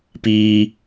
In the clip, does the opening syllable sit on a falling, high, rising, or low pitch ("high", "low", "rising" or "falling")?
high